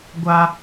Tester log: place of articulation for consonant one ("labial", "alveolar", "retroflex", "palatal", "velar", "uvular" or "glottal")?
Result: velar